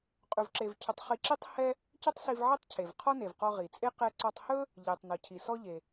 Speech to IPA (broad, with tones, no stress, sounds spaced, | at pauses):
qʼ ɵ˧ v ǁ e˧ v cʰ ʏ˧ tˤ χ i˧ ǁ i˥ tˤ h ɛ˥ | c ʏ˥ tˤ s i˧ v ʕ i˥ tˤ cʰ e˩ v qʰ ɔ˥ n e˩ v q ɔ˧ ʁ i˩ t͡sʼ e˥ q ɛ˧ ǀ ɔ˧ tˤ h ɵ˥ | ʎ e˩ tˤ n ɔ˩ cʰ i˩ s ɔ˥ ʎ e˩